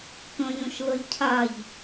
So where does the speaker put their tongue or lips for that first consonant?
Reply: velum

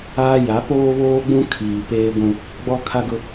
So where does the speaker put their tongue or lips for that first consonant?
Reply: palate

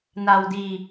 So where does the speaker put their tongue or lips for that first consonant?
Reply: tongue tip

